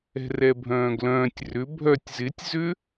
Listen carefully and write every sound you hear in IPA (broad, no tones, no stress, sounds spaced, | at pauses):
ɛ̤ r ɛ bʱ œ̃ː ɡ l œ̃ː tʲ r ʏ bʱ œ tʲ z ɪ tʲ z ʏ